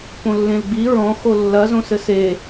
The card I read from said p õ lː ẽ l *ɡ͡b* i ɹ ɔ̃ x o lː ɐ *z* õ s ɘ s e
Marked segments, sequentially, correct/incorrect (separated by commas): correct, correct